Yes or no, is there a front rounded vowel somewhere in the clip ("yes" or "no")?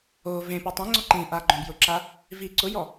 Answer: no